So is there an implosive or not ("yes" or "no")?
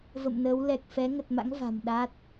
yes